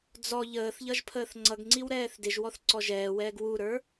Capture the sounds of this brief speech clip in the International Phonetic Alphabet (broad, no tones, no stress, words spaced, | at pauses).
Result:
d͡zɔ ʎəːθʎʌʒ pʰəːθŋ͡ǀʌɡŋ͡ǀiw ɾɛːθdɪʒwɔθ ǀɔʒɛːwɛːɡ wuɾə˞